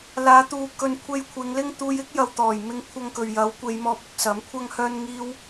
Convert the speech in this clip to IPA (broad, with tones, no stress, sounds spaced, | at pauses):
l aː˨˧ t̪ uː˨˧ k ɵ˧ n kʷʰ e˧ j kʷʰ ɪ˨˧ ŋ l ɪ˥ ŋ t̪ uː˧ j ɪ˥ k̚ j ɐ˨ w t̪ ɔː˨˩ j m ɪ˧ ŋ kʷʰ ɐ˧ ŋ k ɵ˨ ɥ j ɐ˨˥ w kʷ e˨˧ j m ɔː˧ p̚ ʊ˧ k̚ s ɐ˨˥ m kʷʰ ɐ˥ ŋ h œː˥ n ŋ iː˥ w